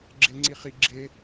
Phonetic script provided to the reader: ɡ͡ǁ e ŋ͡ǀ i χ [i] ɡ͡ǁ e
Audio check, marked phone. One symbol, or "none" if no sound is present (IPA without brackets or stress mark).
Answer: i